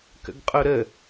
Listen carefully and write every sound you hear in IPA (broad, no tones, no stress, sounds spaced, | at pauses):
k ə̰ ɡ qʼ o ɾ ə